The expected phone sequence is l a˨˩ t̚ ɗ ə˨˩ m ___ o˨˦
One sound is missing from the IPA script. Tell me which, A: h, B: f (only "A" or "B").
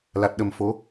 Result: B